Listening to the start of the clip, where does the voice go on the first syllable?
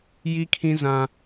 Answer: high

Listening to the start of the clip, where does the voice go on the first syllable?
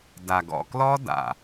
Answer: low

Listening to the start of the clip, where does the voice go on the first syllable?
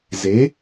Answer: rising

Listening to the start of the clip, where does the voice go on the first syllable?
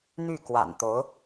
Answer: falling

